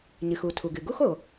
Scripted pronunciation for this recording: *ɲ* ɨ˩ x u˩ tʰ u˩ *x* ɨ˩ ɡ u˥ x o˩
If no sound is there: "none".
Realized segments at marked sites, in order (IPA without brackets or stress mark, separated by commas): ɲ, ɡ